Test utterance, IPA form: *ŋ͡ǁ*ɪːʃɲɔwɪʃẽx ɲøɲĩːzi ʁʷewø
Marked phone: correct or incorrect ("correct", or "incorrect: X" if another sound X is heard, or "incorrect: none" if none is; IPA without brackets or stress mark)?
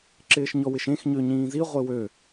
incorrect: ǁ